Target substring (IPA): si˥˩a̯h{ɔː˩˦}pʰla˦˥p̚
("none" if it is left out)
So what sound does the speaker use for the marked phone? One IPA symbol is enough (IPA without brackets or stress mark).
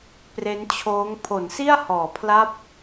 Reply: ɔː˩˦